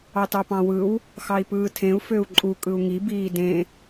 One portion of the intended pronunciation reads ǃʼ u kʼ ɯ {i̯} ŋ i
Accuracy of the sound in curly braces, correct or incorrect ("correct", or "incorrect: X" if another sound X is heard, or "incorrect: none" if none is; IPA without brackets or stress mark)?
incorrect: u̯